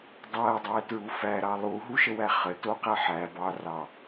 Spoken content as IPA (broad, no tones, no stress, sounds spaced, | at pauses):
dˤ æ dˤ æ t ɹ u f æ ɾ ɑ lˠ u ɦ u ʃ ə w æ χ ə t o q æ ħ æ b ɑ r ɑ